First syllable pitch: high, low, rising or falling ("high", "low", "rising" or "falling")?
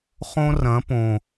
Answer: high